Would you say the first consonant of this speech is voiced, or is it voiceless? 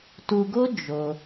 voiceless